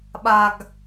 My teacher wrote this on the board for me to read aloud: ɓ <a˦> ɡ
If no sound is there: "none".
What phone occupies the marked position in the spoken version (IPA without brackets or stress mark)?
a˨